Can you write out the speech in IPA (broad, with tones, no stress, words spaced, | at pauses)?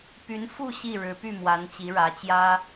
py˧˥nfu˥˧ ɕi˥˩ɻɻ̩˧˥py˥˩mwa˧˥n t͡ɕi˧˥ɻä˧˥t͡ɕjä˥